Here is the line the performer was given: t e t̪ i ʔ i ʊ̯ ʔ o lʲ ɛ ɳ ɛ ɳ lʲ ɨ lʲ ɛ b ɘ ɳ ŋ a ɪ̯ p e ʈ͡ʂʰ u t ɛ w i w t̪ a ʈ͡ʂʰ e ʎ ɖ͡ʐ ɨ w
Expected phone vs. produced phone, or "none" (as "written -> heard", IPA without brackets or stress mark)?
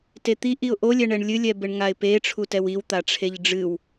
none